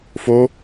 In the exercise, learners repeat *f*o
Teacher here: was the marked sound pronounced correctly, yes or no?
yes